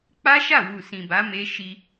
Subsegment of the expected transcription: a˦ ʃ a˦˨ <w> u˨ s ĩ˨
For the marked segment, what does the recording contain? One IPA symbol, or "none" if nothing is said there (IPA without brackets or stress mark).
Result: w